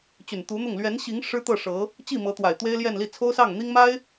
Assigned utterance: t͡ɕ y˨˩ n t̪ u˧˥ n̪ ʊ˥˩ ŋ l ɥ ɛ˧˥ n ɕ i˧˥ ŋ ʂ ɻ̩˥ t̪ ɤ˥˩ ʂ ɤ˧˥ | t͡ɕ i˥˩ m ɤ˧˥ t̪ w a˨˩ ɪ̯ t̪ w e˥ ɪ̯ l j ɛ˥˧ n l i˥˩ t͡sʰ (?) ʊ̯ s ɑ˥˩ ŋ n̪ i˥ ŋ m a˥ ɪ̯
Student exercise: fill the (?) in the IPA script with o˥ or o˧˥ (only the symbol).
o˥